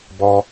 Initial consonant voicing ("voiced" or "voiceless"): voiced